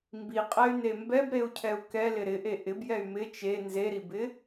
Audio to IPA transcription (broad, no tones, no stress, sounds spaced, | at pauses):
m b i qʼ ɛ y̯ n e m b ɛ b ɾ e u̯ cʰ ɛ u̯ k ɛ l ɪ ɾ ɪ ʔ e ʔ ɪ b j ɛ y̯ m ɪ t͡ʃ e n z e ɾ i b ɪ